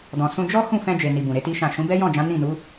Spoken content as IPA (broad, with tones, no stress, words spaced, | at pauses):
dɔ̃˨ sũ˧ d͡ʒɔ˦ hũ˦˨fɛ̃˧ d͡ʒe˨ni˨ bũ˨ɾe˨˦ti˦ʃã˦˨ ʃũ˨˦bɛ˦jɔ̃˦˨d͡ʒã˨˦ nĩ˦˨nu˨˦